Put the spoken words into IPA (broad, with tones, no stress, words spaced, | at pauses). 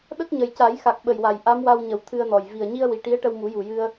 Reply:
ɗə˦˥k̚ɲə˨˩jca˨˩˦j xa˨˩k̚ɓə˨˩jwa˨˩j ʔa˧˥mwa˧wɲə˨˩w t̪ʰɨ˧ə̯nɔ˨˩j vi˨˩ə̯ɲi˧ə̯wi˨˩ ʈi˧˥ə̯ʈə˧wmu˨˩˦ju˨˩ jɨ˧ə̯